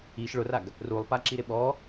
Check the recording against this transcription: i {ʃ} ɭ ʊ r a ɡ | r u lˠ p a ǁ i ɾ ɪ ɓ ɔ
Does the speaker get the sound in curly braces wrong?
no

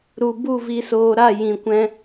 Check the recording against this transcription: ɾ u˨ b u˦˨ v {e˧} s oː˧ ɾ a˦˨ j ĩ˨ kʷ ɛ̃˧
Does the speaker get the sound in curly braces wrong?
yes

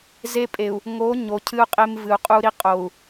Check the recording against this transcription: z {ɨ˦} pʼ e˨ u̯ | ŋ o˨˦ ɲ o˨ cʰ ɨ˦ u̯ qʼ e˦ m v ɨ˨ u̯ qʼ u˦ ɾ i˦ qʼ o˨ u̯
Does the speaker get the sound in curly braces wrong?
yes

